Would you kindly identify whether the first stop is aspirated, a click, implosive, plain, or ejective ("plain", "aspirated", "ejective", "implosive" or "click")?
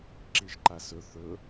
click